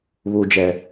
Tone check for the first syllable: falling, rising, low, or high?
low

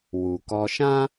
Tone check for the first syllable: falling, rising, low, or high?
low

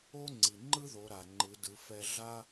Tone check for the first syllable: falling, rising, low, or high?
high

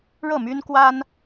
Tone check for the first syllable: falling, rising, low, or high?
falling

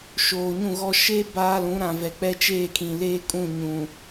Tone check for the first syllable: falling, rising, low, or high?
low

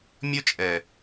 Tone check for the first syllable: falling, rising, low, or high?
high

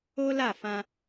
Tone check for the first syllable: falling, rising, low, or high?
high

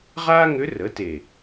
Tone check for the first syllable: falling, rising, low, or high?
high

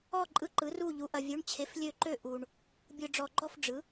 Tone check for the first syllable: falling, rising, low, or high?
falling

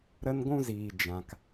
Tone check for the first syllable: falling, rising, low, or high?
high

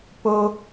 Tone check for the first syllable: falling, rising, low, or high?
high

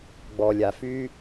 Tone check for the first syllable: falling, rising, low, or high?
low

